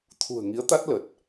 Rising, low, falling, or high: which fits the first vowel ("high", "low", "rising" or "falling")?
low